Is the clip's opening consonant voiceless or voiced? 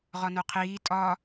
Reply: voiced